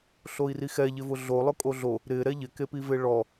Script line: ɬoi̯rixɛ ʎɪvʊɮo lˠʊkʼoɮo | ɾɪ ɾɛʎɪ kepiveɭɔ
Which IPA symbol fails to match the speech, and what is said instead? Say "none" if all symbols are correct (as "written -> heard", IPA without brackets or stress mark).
none